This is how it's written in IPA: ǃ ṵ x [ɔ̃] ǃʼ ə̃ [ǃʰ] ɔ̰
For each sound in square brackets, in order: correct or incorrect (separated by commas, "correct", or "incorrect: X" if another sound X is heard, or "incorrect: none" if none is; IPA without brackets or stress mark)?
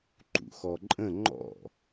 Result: incorrect: ɔ, incorrect: ŋ͡ǃ